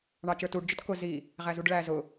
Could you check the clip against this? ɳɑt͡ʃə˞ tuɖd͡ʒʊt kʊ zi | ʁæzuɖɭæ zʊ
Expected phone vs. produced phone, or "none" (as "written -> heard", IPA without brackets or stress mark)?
none